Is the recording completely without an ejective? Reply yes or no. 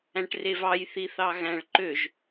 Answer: yes